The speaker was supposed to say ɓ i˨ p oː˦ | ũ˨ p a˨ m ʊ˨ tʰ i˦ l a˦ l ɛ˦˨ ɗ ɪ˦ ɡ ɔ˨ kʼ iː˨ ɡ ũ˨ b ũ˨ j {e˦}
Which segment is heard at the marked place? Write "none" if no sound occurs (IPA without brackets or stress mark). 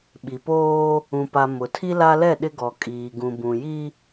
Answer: i˦